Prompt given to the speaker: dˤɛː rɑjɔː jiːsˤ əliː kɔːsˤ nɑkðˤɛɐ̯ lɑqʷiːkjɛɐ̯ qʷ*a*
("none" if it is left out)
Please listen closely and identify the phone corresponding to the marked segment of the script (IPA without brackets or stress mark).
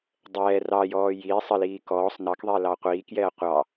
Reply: ɑ